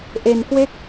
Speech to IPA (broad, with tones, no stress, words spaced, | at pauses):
ʔe˧nkwe˥˩k̚